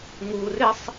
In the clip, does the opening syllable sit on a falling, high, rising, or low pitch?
low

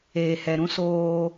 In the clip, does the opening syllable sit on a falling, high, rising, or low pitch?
low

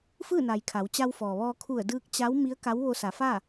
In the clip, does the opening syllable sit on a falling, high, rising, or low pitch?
falling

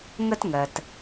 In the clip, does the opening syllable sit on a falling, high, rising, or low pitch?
high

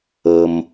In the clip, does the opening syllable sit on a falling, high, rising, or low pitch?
low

